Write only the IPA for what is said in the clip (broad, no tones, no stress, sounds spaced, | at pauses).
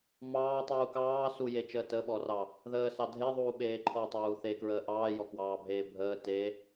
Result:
m ɑː tˤ uː k ɑː s u j e t͡ʃ əː t ə ɓ ɔ r ɑ | ð əː s ɑ dʱ e ðˤ uː ɓ eː ǃʰ ɔ tˤ uː θ e k ɹ əː ʔ ɑː j ɔ k w ɑː bʱ eː bʱ əː t e